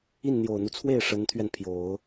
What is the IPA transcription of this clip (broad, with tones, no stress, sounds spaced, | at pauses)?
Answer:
i˥˩ n n̪ j o˨˩ ʊ̯ n̪ u˦ t͡sʰ w e˥˩ ɪ̯ ʂ ə˧˥ n t̪ʰ ɥ ɛ˧ n pʰ j o˨˩˦ ʊ̯